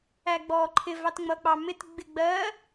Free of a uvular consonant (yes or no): yes